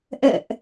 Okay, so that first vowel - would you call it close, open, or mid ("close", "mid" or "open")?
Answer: mid